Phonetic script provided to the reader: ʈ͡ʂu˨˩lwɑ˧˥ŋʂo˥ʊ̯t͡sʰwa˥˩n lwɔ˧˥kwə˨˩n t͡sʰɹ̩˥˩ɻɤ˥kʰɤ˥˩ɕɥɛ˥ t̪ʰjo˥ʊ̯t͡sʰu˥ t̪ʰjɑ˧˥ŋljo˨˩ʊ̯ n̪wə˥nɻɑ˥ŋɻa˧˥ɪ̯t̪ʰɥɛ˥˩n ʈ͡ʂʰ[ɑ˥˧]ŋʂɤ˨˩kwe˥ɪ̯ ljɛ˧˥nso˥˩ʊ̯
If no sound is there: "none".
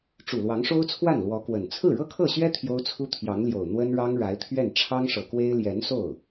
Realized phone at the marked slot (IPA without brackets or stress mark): ɑ˥